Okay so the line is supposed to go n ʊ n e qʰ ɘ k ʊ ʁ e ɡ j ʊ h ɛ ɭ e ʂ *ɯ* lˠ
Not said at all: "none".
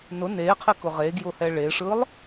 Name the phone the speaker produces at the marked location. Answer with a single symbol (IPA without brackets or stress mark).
ɯ